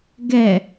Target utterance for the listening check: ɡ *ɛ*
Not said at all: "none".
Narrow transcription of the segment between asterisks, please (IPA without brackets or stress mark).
ɛ